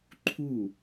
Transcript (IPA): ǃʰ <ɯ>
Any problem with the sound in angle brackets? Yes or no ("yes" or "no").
yes